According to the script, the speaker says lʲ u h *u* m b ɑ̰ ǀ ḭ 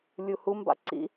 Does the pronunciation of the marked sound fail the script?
no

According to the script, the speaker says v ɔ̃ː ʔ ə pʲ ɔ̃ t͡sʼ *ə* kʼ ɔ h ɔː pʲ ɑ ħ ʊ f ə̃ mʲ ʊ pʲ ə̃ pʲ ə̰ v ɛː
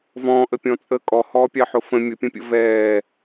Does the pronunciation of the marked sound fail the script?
no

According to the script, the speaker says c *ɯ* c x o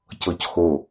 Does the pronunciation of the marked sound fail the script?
yes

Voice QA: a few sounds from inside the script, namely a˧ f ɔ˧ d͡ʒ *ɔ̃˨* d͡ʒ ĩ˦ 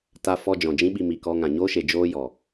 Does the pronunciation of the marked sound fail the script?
no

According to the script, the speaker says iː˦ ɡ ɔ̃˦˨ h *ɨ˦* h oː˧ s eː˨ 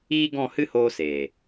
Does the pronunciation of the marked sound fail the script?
no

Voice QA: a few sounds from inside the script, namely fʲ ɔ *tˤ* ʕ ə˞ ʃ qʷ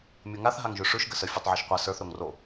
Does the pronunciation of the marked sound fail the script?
no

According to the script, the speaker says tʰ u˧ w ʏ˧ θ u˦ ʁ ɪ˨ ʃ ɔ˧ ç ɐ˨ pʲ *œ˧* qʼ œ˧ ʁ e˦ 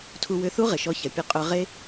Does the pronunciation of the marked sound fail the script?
no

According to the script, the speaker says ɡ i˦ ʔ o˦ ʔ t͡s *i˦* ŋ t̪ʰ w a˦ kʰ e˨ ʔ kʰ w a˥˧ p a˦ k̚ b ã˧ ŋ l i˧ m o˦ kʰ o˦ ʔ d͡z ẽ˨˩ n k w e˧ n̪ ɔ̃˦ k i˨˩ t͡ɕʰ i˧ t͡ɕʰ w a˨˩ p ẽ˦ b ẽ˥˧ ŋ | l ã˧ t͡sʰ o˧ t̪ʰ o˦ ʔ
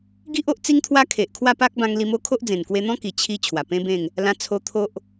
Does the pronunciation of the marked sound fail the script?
no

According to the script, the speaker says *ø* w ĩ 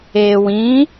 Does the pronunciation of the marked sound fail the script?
yes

